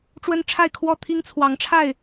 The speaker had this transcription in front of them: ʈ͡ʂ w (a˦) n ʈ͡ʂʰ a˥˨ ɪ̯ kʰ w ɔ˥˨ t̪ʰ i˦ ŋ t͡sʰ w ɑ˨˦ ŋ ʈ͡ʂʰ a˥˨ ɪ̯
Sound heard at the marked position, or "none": ə˦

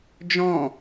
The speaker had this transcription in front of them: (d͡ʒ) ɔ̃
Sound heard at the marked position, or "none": d͡ʒ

